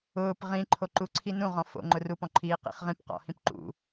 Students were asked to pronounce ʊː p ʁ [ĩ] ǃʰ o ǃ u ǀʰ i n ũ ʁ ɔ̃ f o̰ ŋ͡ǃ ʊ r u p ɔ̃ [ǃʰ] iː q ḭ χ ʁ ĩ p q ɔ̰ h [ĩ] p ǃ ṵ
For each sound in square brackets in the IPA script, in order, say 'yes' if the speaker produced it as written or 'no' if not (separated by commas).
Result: yes, yes, yes